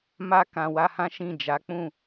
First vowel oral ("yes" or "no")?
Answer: yes